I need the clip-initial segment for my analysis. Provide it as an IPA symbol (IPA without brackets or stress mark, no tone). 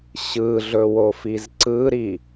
ɕ